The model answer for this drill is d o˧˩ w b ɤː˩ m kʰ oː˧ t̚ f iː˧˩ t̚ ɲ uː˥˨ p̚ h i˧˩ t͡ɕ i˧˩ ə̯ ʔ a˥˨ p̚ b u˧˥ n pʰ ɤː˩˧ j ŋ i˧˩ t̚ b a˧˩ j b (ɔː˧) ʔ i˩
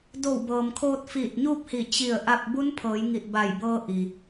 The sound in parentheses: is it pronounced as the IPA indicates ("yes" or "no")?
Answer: no